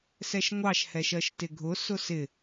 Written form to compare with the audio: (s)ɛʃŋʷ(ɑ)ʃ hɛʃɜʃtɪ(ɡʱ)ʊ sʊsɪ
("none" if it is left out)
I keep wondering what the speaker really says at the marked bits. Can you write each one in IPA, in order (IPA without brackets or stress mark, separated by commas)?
s, ɑ, ɡʱ